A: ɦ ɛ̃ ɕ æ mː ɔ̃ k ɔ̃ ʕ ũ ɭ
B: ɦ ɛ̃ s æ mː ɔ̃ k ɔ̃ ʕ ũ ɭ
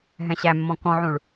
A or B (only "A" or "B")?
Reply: A